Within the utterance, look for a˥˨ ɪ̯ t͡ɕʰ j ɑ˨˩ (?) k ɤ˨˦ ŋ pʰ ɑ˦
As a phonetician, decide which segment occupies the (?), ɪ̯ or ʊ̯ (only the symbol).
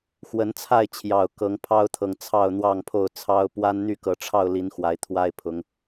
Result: ʊ̯